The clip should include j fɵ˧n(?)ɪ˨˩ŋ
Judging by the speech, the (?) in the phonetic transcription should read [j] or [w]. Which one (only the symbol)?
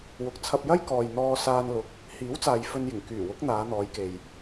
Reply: j